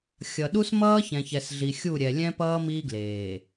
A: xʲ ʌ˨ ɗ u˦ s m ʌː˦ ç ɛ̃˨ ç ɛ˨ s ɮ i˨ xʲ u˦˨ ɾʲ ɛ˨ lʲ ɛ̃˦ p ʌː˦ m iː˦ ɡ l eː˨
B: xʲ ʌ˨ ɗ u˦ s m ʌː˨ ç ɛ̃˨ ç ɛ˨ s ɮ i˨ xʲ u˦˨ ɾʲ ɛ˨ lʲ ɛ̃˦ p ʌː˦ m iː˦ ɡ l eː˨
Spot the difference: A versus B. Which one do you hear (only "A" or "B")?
A